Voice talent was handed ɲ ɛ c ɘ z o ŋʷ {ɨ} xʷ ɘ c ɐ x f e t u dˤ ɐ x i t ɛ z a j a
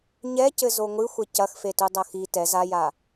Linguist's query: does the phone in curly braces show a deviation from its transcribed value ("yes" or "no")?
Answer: no